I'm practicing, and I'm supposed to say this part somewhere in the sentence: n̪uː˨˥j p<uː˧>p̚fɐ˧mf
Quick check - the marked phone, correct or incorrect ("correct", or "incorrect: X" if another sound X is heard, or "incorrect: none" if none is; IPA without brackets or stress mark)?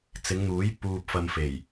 correct